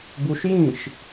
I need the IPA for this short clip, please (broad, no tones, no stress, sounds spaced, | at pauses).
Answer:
b u ʃ j ĩ ʃ